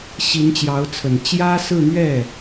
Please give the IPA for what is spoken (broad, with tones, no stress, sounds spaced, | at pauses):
ɕ i˧˥ n t͡ɕ j ɑ˧˥ ʊ̯ t͡sʰ ə˨˩ n t͡ɕ j ä˥ s ɹ̩˥˧ n̪ ɥ ɛ˥˩